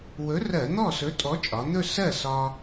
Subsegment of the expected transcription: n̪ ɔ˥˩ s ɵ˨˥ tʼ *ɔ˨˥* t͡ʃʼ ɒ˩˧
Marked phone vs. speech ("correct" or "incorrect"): correct